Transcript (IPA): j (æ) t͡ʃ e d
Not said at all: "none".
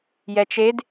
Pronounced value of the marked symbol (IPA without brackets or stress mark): ɛ